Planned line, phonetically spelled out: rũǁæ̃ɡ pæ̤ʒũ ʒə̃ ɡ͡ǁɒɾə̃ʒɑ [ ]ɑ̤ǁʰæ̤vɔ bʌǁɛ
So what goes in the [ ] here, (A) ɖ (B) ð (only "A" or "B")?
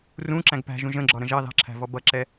B